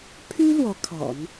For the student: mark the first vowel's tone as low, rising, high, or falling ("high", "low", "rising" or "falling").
high